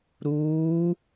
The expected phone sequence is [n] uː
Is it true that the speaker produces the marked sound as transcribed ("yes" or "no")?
no